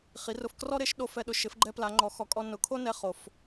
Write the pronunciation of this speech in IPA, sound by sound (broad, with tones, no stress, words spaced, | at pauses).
χi˩˥rʊ˧f krɔ˥ɾe˩˥ʃɗo˧ fɛ˧ɗʊ˩˥ʃɪ˩˥f ɡ͡ǃɛ˥pla˩˥ŋ͡ǃɔ˩˥xɔ˩˥ kʼɔ˧ nʊ˩˥ kʰo˥nɛ˧ χo˩f